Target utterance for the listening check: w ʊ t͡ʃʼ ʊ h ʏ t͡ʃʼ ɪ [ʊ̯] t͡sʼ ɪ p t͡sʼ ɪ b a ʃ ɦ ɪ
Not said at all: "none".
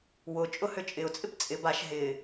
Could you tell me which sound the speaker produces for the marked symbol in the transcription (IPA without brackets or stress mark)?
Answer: ʊ̯